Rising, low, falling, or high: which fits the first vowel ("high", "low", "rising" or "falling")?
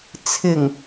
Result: low